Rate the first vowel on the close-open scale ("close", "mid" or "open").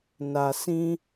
open